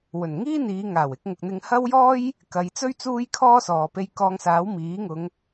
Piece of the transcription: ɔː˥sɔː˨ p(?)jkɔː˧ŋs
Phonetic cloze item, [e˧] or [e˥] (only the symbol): e˧